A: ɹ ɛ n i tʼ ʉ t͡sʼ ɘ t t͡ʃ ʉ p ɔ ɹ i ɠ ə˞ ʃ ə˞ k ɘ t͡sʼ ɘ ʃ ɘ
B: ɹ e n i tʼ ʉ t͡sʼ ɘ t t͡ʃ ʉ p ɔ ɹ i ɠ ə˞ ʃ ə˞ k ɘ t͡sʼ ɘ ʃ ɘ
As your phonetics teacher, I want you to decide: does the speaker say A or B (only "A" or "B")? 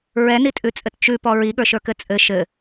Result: A